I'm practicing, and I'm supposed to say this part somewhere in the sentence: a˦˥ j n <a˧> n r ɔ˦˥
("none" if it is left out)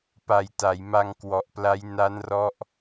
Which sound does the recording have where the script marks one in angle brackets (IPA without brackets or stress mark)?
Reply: a˦˥